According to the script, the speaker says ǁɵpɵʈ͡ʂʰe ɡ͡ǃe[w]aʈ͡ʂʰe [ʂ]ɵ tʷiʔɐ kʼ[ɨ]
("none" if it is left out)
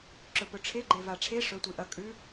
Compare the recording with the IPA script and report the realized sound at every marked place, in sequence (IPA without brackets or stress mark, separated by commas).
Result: v, ʂ, ʉ